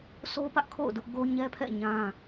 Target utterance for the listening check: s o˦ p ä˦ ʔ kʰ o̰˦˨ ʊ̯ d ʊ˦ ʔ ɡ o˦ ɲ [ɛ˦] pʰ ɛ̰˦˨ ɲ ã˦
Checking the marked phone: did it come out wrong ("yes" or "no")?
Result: no